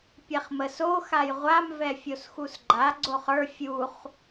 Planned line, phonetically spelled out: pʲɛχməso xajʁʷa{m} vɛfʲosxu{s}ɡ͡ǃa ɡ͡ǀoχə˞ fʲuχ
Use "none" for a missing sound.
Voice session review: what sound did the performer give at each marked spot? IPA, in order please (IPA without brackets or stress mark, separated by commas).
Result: m, s